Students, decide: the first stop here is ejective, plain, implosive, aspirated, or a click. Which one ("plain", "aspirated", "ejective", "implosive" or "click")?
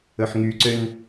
click